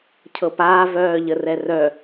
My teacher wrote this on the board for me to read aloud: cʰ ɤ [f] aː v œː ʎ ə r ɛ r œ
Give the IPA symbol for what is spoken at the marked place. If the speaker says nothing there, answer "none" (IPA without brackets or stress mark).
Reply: p